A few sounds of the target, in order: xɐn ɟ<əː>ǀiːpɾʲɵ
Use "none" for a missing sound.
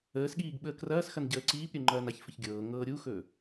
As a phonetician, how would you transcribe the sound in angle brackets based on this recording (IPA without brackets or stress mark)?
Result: əː